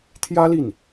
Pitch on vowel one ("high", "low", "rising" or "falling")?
high